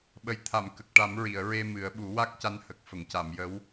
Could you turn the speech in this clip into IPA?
ɓ ə˨˩ j t̪ʰ a˨˩˨ m k ə˨˩ k̚ ʈ a˨˩˦ m ɹ i˨˩˨ ə̯ ɹ e˧ m ɨ˨˩˦ ə̯ ɓ u˨˩˦ w a˦˥ k̚ c a˧˥ n h ə˨˩ k̚ f ə˨˩˨ ŋ c a˨˩˨ m j ə˧˥ w

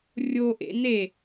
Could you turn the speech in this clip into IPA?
rʲ o ʔ ḛ n e

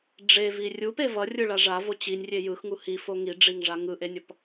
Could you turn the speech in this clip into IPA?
ɖ͡ʐ e v i rʲ u p e v ʌ rʲ ɯ ɭ a ʐ a v o t͡ɕ i nʲ rʲ e j ɯ x ŋ u h i f o ŋ i ɖ͡ʐ i ŋ ʐ a ŋ ɯ ʔ e nʲ ʌ p

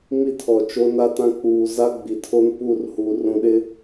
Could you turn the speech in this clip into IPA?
m i˦ tʰ ɔ˨ t͡ʃ o˦ n a˦ t ã˦ k͡p uː˨ z a˦ ɡ͡b i˨ tʰ o˦ n p u˦˨ r h u˨ r ũ˨ ɗ ɪ˦

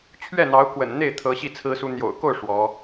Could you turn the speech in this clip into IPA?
t͡ɕʰ ɥ ɛ˥˩ n̪ ɑ˧˥ ʊ̯ k w ə̰˨˩ n n̪ e˥˩ ɪ̯ t̪ʰ ɤ˧˥ ɕ i˥˩ t͡sʰ ɹ̩˥ s u˥ n̪ j o̰˨˩ ʊ̯ k o˥˩ ʊ̯ ʂ w ɔ˧˥

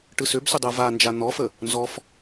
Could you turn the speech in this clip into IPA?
ʈ ɯ s ʏ b s ʏ dˤ ɯ v a n d͡ʒ a n̪ ɔ f ə | n z ɔ f

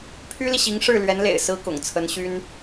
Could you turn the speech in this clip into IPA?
pʰ y˥ l i˨ ɕ i˧˥ ŋ ʂ ɻ̩˥˩ l ɥ ɛ˧˥ n l ḛ˨˩ ɪ̯ s ɹ̩˥ k ʊ̰˨˩ ŋ t͡sʰ ə˧˥ n ɕ y˥ n

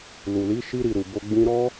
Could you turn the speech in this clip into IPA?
l u˨ l i˨˦ ʃ i˧ ɾ i˨ ɾ u˨ b o˧ ɡ͡b ĩ˦ ɾ ɔ˦

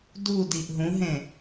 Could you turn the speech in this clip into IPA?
d u d i ʔ ɦ ũ ɦ ẽ

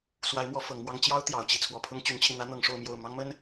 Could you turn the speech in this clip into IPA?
s w a˧˥ ɪ̯ m w ɔ˧˥ f ɤ˧˥ ŋ m w ɑ˥ ŋ t͡ɕ j ɑ˥ ʊ̯ t̪ j ɑ˨˩ ʊ̯ t͡ɕ i˥˩ t͡sʰ w ɔ˧˥ pʰ ʊ˥ ŋ t͡ɕ y˧˥ n t͡ɕʰ i˧ n̪ ä˥ n̪ ɤ˧˥ ŋ ʂ o˥˧ ʊ̯ m j o˥˩ ʊ̯ m ɑ˥ ŋ m ə˥ n

